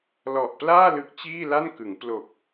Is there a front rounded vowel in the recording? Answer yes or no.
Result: no